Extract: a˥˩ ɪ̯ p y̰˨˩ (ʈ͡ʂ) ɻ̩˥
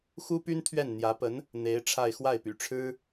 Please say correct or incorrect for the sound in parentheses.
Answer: incorrect